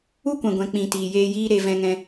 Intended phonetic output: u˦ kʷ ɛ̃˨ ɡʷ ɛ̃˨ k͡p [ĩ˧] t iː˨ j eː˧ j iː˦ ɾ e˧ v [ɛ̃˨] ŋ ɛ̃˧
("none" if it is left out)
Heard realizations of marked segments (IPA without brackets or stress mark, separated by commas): ĩ˨, ɛ̃˧